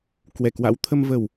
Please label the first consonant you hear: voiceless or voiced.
voiceless